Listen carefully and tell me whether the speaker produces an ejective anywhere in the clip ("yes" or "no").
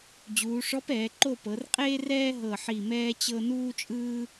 yes